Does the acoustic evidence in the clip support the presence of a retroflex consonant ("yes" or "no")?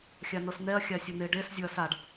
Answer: yes